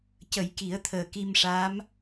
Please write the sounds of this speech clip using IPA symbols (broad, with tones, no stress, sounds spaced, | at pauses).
c ə˨˩˦ j k i˨˩˦ ə̯ t̪ʰ əː˨˩ k i˧ m ʂ a˧˥ m